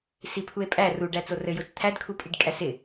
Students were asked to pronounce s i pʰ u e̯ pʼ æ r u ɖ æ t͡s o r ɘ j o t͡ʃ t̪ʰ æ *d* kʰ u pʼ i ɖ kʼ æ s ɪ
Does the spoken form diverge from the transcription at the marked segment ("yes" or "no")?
no